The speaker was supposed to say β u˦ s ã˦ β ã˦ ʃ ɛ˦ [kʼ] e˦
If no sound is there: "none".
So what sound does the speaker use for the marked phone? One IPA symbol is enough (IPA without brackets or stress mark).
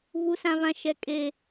kʼ